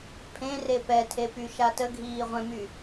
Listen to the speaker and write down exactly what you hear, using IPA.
pʰ ẽ r e p ɛ tʰ e p y ʃ a t ə ɡʱ iː ʁʷ ɛ̃ m y

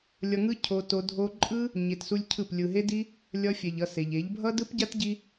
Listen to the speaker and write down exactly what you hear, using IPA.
lʲ ʌ˧ ŋ ɯ˦ cʰ o˧ t o˧ dʱ o˧ ǃʼ ɯ˦ | ɲ e˧ t s u˦ lʲ cʰ ɯ˦˨ p lʲ ɯ˨ ɦ e˦ d i˦ | lʲ ʌ˧ fʲ ɛ˨ ʎ ʌ˧ s e˨ ʎ e˨˦ ʎ bʱ ʌ˦ d ɯ˦ p ɟ a˦ t ɟ i˧

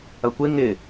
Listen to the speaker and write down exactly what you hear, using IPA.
ɐ kʷ ɪ ŋ ɪ

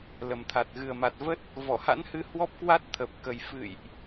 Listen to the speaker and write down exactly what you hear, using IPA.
l ə˨˩ m t̪ʰ a˨˩ t̚ ɣ ɨ˨˩ ə̯ m a˨˩ t̚ v ə˦˥ t̚ | v ɔ˧˩ h a̰˧˥ n h ɨ˧ h w ɔ˦˥ p̚ k w a˦˥ t̚ t̪ʰ ə˨˩ p̚ k ə˨˩ j f ɨ̰˧˨ j ʔ

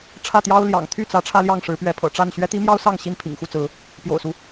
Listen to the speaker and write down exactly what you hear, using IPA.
ʈ͡ʂʰ ä˥˨ t̪ j ɑ˦ ʊ̯ l j ɑ̰˨˩ ŋ t̪ʰ y˥˨ t͡s ä˨˦ ʈ͡ʂʰ ä˦ l j ɑ˥˨ ŋ ʂ ɻ̩˨˦ p ɥ ɛ˨˦ pʰ ɤ̰˨˩ ʈ͡ʂ a˥˨ n ɕ ɥ ɛ˦ t̪ i˦ m j ɑ˦ ʊ̯ s ɑ˥˨ ŋ ɕ i˥˨ n pʰ ḭ˨˩ ŋ x u˥˨ t͡s ɹ̩˨˦ | p j o̰˨˩ ʊ̯ s u˦

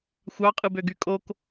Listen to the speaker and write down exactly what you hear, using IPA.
xʷ ɑ qʼ ɯ b ø ɡ y kʼ o k

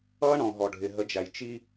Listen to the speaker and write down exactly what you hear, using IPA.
ʌː˦ ɳ ɔ̃˨ ɦ ɔ˨ ɖʱ ɪ˨ ɦ ə˨˦ d͡ʒ æ˨ j t͡ʃ i˦

